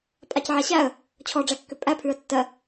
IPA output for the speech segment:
pʼ a c ʕ a ɕ æ ə̯ | t͡ɕʰ ɔ ɖ͡ʐ æ kː ʏ pʼ æ pʰ ʉ ə̯ tː ɜ

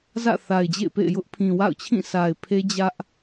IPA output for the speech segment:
z ä̰˦˨ θ a˨ ɪ̯ d͡ʑ ḛ˦˨ ɪ̯ p ḛ˦˨ ɪ̯ j ʊ˦ ʔ pʰ ĩ˨ w a̰˦˨ ʊ̯ t͡ɕʰ ĩ˦˨ s a˨ ɪ̯ pʰ e˦ d͡ʑ ä˦ ʔ

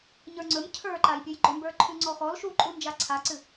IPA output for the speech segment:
ɲ ə˞ ŋ͡ǀ ɵ m cʰ ə˞ ǃ a j pʲ ɵ j ɡ͡ǃ ɵ m b ə˞ ǃʰ ʉ ŋ͡ǀ ɔ x ɔ l ʃ u ǃʼ u n d͡ʒ a ǀʰ a ǀ ɨ

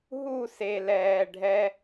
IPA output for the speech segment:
ɦ u˦˨ s e˨ l ɛː˨ ɖʱ ɛ˧

